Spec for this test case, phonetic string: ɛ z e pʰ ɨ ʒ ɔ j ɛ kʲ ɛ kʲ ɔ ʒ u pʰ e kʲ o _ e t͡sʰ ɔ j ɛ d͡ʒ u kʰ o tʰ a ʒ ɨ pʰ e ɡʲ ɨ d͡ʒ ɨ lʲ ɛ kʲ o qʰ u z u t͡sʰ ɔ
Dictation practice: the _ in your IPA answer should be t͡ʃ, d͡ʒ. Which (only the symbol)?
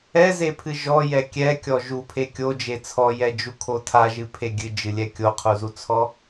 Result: d͡ʒ